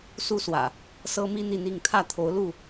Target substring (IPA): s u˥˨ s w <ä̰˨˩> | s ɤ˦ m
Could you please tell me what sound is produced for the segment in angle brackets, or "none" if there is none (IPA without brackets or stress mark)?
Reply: ä̰˨˩